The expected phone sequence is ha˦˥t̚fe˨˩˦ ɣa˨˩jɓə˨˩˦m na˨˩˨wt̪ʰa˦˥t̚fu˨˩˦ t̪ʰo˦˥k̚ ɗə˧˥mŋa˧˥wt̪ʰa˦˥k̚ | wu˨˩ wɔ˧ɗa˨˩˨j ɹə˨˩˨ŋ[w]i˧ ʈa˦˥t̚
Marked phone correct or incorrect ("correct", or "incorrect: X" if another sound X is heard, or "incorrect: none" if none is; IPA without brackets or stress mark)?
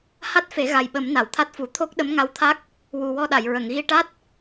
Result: incorrect: ɣ